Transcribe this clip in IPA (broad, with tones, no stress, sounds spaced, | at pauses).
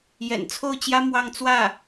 j ɛ̰˨˩ n t͡sʰ o˥˩ ʊ̯ t͡ɕ j ä˥ m w ɑ˥˧ ŋ t͡s w ä˥˩